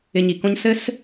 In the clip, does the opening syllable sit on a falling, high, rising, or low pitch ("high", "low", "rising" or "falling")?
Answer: low